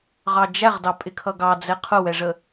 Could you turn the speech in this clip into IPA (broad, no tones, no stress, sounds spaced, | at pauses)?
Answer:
ʁ ɑ d͡ʒ æ ʁ d ɑ pʼ ɪ kʰ ʌ ɡ ɑ d͡z ɛ qʰ ʊ w ɛ ʐ ə